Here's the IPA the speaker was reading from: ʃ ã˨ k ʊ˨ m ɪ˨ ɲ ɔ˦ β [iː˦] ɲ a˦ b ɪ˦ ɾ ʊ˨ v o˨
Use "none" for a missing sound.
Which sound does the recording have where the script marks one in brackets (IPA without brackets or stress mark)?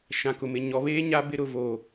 eː˦